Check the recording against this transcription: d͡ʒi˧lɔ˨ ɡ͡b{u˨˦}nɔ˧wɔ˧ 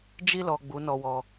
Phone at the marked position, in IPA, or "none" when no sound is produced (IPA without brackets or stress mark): u˨˦